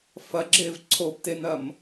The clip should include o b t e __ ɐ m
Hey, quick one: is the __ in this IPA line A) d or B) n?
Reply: B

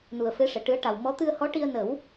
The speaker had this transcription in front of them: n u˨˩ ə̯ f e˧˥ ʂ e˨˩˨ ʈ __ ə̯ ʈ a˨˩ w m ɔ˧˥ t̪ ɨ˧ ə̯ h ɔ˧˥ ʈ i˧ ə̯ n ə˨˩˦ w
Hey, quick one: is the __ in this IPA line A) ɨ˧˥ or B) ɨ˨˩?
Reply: A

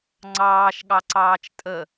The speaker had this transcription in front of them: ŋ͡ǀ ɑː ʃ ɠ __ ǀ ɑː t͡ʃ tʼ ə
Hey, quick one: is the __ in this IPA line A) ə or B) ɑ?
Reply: B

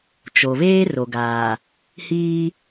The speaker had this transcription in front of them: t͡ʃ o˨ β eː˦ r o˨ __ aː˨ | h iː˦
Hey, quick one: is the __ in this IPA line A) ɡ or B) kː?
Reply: A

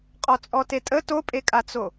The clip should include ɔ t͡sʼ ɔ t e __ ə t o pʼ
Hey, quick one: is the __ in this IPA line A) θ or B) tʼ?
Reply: B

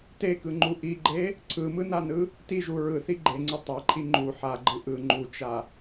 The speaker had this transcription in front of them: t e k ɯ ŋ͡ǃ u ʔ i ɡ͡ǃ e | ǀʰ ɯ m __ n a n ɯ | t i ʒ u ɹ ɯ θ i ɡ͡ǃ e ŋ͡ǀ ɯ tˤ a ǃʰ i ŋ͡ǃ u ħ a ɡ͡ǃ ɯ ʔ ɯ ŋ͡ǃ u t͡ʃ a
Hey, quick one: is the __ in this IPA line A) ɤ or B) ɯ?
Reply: B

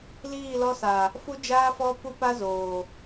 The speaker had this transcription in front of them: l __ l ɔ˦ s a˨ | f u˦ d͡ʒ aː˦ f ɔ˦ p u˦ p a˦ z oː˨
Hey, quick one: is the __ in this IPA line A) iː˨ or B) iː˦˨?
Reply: B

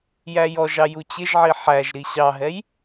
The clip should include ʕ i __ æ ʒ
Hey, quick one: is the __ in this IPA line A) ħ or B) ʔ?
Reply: A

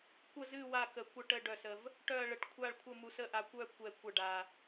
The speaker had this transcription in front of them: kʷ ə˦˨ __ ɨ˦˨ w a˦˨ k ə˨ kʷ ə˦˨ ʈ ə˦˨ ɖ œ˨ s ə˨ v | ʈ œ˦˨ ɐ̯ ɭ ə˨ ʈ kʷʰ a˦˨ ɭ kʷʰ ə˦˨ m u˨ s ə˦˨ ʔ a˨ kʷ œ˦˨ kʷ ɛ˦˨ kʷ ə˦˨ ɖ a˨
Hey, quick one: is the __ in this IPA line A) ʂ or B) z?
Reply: B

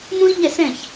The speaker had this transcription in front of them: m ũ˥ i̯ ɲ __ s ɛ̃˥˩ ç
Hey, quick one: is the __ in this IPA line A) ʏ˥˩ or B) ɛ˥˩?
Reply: B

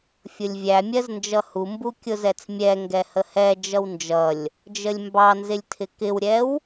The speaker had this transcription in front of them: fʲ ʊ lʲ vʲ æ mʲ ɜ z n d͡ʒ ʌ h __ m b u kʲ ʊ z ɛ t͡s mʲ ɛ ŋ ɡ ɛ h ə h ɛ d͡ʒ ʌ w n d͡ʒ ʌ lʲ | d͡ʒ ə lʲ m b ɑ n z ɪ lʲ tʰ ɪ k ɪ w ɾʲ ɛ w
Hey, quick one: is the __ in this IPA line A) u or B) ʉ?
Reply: A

